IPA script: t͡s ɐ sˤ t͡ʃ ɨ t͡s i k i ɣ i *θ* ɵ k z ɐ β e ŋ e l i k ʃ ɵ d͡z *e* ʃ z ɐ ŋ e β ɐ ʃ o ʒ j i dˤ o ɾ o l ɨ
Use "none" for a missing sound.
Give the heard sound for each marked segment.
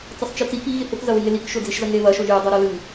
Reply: θ, i

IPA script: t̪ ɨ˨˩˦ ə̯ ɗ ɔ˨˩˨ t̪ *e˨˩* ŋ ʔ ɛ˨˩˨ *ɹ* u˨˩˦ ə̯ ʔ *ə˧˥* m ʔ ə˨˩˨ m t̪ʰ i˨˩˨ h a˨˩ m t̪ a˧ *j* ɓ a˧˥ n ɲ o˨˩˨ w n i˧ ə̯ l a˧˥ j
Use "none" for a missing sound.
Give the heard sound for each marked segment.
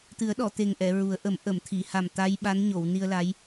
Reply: e˨˩, ɹ, ə˨˩˦, j

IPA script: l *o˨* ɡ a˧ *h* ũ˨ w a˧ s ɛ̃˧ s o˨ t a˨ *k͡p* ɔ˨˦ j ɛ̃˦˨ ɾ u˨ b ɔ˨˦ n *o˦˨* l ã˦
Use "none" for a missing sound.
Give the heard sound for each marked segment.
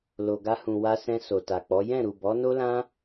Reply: o˨, h, k͡p, o˦

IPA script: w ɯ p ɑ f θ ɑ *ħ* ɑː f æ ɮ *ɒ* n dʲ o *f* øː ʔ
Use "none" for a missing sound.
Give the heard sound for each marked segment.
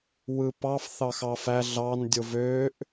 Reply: x, ɑ, v

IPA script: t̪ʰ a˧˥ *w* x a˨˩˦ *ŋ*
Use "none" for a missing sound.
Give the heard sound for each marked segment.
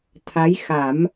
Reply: j, m

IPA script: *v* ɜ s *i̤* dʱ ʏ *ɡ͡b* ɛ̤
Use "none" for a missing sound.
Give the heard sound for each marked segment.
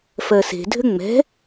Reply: f, e̤, ŋ͡m

